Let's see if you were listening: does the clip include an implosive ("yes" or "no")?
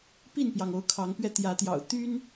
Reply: no